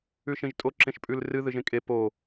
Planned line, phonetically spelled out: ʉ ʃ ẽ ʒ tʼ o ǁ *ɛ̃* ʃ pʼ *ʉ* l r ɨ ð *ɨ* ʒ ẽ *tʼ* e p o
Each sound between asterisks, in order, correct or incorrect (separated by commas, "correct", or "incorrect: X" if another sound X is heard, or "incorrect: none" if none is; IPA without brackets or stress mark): incorrect: ẽ, correct, correct, incorrect: kʼ